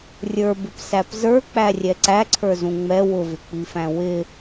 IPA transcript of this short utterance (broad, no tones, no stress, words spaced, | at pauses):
rʲə˞bɪpsæp zə˞k͡pærʲɛ ǀæǀʰə˞zũ ŋ͡mɛ wʊvɪk͡pifæ̃ wɪ